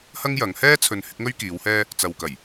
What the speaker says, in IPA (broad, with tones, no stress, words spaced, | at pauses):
hɐ˥ŋjɐ˨˧ŋ hɛː˥t͡sʰɵ˨n hɪ˨˥k̚ŋɵ˥ɥkiː˨˧whɛː˥ | t͡sɐ˨wkɐ˨˩j